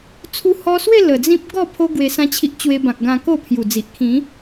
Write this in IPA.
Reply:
t͡sʰu˧hɔ˧swe˥˧ lə˨˩d͡zĩ˦p̚ ɡɔ˥˧ pʰo˧ ɡwe˧sã˦t͡ɕʰi˦ʔ t͡ɕwe˧bã˨k̚ ɡã˧ko˥˧pʰju˨˩d͡zi˨ʔ kʰĩ˨˦

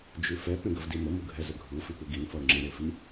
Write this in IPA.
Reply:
d͡ʒʉfɛ pẽɡəvdimə muɡʱɛzəɡʱu fipuɡin fʌo̯ŋ͡ǁẽ ɾefi

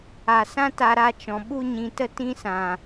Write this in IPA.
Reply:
a˨ sã˦ ta˧ɾa˧t͡ʃɔ̃˨ ɓu˧ɲĩ˨tə˧ tĩ˦sã˨

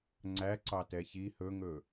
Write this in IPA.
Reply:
ŋ͡ǀæǀɑtɛ çi hɵŋɵ

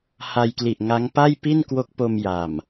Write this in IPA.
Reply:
ha˧jkli˨˩ʔŋa˦˥ŋ pa˥˩jpi˥˩nkwo˦˥k̚po˧m ja˨˩m

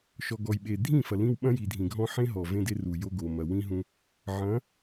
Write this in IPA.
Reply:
ʃɔ˨ɡɔ˨jɓe˨ dʱĩ˦˨fɐ˨ lĩ˦w ɓɐ̃˦ji˨dʱĩ˨ɡʱɔ̃˦ ħẽ˦ɦɔ˨ vẽ˦de˦ru˨jo˦ ɡo˨mɐ˨wĩ˦ɦũ˦ | ʕɐ̃˨˦

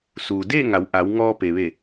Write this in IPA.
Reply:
suː˩deː˥˨ ŋa˩˧wʔa˩˧w ŋɔː˧ pe˩ʋe˧˩

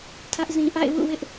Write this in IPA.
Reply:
tʰä˦ʔzĩ˨ ʔa̰˦˨ɪ̯wṵ˦˨wɪ˦ʔ

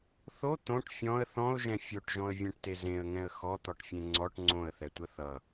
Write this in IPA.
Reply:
θo t̪õʈ fʲɔ̃ə̯ θɔ̃ʊ̯ʒɛ̃ fʲoʈʒɔ̃ə̯vʲɛ̃ʈte zẽə̯ŋɛ̃ə̯ xɔt̪ɔʈfʲẽ ŋ͡ǀɔʈ ŋ͡ǀõə̯θɛtʷə θʌ

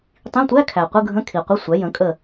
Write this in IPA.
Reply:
tˤĩ˧˥˧tʷæ˧˥˧kʰæ˨ qʷɯ˧˥˧ɡʱə̃˧˥˧kʰi˨qʷə˧˥˧ sʷæ˩˥jə̃˩˥kʼə˦˨

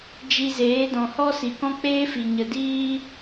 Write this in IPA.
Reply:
d͡ʒi˧zeː˨˦dɔ̃˨hɔ˦ si˨kɔ̃˦k͡peː˦fi˨ ɲə˨diː˦

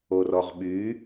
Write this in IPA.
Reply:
orɔʁɓy

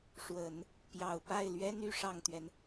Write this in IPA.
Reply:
ʂwə˨˩˦n | pjɑ˨˩ʊ̯pa˥˩ɪ̯lɥɛ˥n y˧˥ʂɑ˥˩ŋt̪ɥɛ˩n

